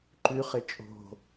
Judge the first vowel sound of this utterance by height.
high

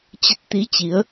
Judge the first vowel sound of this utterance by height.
mid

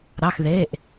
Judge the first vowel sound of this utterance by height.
low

